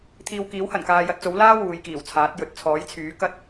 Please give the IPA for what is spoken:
t̪ʰiː˧wkiː˨˥whɐ˨˩n kaː˧ jɐ˧t̚t͡so˨˥wlaː˥ wuː˨˧jkiː˨˩wt͡sʰaː˨˥t̚ jɵ˨t̚t͡sʰɔː˨˥jt͡sʰyː˨˥ kɐ˥t̚

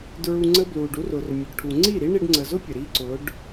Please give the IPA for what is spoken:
dɹu˧ŋ͡ǀə˦blu˨ɖu˦r ʊ˨r mʲʊ˨ɖʈʰu˨ ŋ͡ǀi˦˨ɾi˦ ɳi˧ɖŋ͡ǀə˨zʊ˦ pʲə˨ɾi˦ ǀʊ˨˦ɖ

